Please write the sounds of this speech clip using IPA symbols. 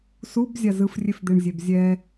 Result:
s u b zʲ a z ɯ f rʲ e f d̪ e ɳ zʲ e b zʲ ɛ

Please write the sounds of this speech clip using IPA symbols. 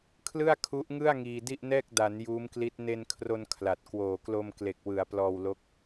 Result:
kʰ l ɯ˥˩ a̯ kʰ u˦˥ ʔ ŋ ɯ˥˩ a̯ ŋ iː˧ d i˥˩ ʔ n ɛː˥˩ k̚ d a˩˦ n j uː˦˥ m k l i˦˥ t̚ n e˧ n kʰ r o˧ n kʰ l a˨˩ t̚ k w oː˨˩ k l o˧ m k l e˨˩ k̚ w ɯ˩˦ a̯ p l ɔː˧ w l o˦˥ k̚

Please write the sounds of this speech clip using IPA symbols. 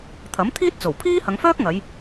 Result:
t̪ʰ ɐ˨˥ m t̪ʰ iː˥ t̚ t͡s o˨˩ w pʰ iː˥ h ɐ˨˧ ŋ f œː˥ k̚ ŋ ɐ˨˧ j

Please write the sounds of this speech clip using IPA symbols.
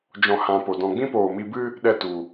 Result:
d͡ʒ ɔ̃˧ h ã˧ p o˨ d ɔ̃˧ ɡ͡b ĩ˦ p oː˨ m i˧ b ɨ˦ | ɗ ɛ˦ t u˨

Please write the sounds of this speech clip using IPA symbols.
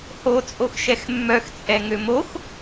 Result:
h o t͡sʼ o x ʃ ɛ x mː œ x t͡sʼ ɛ ŋ ø m o x

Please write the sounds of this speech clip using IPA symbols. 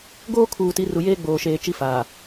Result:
ɡ oː˦ kʰ uː˨ t i˨˦ r u˨ j eː˦ ɡ͡b oː˨ ʃ eː˨ t͡ʃ i˦ f aː˨

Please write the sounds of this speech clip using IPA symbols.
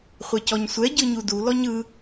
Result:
χʷ ɛ c ɔ ɲ sʷ ɛ ɟ ɯ ɲ u d u l ɔ ɲ ɯ

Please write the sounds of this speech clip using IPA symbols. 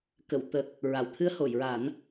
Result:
k ə˨˩˨ w t̪ ə˨˩ k̚ | ɹ a˨˩˨ w t̪ʰ ɨ˧ ə̯ h o˨˩˨ j ɹ a˨˩˦ n

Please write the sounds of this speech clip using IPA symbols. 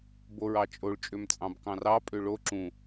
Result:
b o ɹ ɑ t͡ʃʼ o ɭ t͡ʃʼ ø m t͡sʼ ɑ̃ b k ɑ̃ r ɑ pʼ ø ɭ o ǁ ũ

